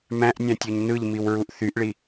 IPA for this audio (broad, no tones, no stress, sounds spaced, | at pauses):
m æ̃ ʔ nʲ æ̃ tʲ o ɲ n ɯ ʎ m i w ɹ u ʔ θ y ʔ ɭ i